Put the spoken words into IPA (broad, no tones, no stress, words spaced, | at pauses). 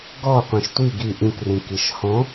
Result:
ɡɔqʷẽʃ tʷi ɡi ʔĩkrĩ kiʃhɔ̃